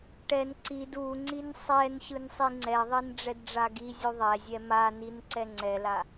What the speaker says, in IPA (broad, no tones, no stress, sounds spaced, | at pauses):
ʈ ɛ n ǀ i d u ŋ͡ǀ i n sˤ ɛ n ɕ ɯ n sˤ i ŋ͡ǀ ɛ ðˤ i n ɖ͡ʐ ɛ d ɖ͡ʐ a ɡ i zʲ u ðˤ ɛ zʲ ɛ m a n i n ǀ ɛ ŋ͡ǀ ɛ l a